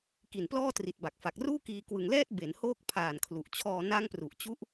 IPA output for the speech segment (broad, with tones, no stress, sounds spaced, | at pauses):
k i˨˩ n p l ɔː˥˩ t r i˨˩ t̚ b a˨˩ k̚ f a˨˩ k̚ r uː˥˩ k iː˧ k w ɯ˨˩ ŋ l ɛː˥˩ t̚ b e˩˦ n h oː˥˩ k̚ pʰ aː˨˩ n kʰ l u˨˩ ʔ t͡ɕʰ ɔː˧ n a˦˥ ŋ p r u˨˩ ʔ t͡ɕ u˦˥ ʔ